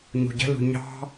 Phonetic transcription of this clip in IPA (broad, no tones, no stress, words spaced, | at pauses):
ɲṳɟə̤lṳ ɲɑ̤